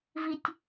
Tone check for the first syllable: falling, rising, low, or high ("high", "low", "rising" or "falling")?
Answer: high